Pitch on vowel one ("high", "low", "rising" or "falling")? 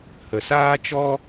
low